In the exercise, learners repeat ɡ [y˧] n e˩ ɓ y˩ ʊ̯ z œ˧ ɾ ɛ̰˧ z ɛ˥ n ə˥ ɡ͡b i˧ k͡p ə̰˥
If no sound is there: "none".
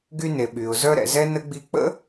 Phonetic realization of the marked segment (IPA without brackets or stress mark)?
y˧